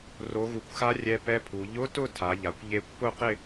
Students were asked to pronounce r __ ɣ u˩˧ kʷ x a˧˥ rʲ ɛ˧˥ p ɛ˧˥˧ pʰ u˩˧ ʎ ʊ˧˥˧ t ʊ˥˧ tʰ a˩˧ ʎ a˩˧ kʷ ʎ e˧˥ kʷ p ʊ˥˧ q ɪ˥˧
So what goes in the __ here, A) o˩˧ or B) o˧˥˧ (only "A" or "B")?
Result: A